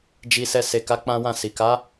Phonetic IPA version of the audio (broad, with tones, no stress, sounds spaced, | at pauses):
d͡ʒ i˧ s ɛ˧ s e˨ k a˨˦ k͡p ã˦ w ã˦˨ s i˨ k a˨˦